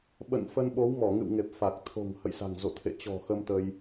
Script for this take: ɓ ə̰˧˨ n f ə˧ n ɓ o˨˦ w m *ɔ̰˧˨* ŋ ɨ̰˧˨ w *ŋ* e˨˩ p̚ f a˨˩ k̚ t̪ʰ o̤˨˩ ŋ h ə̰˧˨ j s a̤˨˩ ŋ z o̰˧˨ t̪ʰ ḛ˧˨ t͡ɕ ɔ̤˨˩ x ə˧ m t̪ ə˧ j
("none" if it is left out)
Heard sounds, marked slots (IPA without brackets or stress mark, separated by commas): ɔ˧˩, ŋ